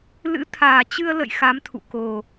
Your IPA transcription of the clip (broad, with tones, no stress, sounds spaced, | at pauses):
l ɨ̰˧˥ t̪ʰ aː˨˩ t͡ɕ ɨ˧ ə̯ l ə̰˧˨ j x a˨˦ m t̪ʰ ṵ˧˨ k o˨˩